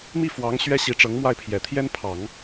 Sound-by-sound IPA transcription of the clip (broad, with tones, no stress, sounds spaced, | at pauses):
m i˥˩ f w ɑ˧˥ ŋ ɕ ɥ ɛ˥ ɕ i˧˥ ʈ͡ʂ ɤ˧˥ ŋ m w a˥˩ ɪ̯ pʰ j ɛ˨˩ t̪ʰ j ɛ˥ n pʰ ɑ˨˩˦ ŋ